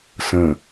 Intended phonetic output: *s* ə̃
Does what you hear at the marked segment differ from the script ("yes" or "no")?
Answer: no